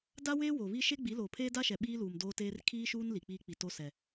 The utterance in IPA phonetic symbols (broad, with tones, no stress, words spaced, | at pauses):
da˦weː˦ wo˨βi˦ ʃe˦ɡ͡bi˨˦loː˨pʰeː˦ da˦ʃɛ˨ ɓiː˦luː˨m doː˦teː˦r kʰiː˦ʃuː˦n li˨k͡piː˦k͡pi˨ to˦sɛ˨